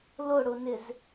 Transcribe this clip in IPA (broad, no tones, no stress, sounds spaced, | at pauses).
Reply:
l ʊ ɽ ʊ n ɪ z